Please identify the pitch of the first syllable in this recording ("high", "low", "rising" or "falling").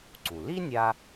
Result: low